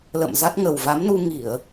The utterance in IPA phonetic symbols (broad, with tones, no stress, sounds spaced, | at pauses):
l ə̰˧˨ m z a˦˥ t̚ ŋ ə˨˩ w v a˨˦ m n u˧ ŋ i˧˩˨ ə̯